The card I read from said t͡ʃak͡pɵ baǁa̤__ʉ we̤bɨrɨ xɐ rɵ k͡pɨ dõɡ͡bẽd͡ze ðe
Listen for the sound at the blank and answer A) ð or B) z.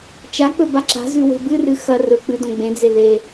B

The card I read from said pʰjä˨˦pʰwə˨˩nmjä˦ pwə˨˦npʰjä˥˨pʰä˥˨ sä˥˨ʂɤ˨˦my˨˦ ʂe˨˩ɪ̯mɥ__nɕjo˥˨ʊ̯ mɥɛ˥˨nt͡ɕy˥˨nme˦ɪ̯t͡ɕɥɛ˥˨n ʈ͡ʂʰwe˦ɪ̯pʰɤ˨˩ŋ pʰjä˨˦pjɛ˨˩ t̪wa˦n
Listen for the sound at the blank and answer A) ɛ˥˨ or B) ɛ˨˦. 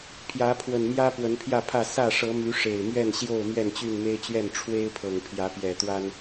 A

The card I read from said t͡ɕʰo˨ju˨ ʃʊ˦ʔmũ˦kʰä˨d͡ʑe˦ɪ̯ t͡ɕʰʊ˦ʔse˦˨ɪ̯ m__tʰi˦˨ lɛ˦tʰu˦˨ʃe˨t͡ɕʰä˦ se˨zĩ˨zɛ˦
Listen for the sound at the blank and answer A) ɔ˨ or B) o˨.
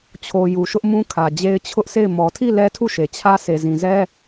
A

